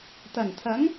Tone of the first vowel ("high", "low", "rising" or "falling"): low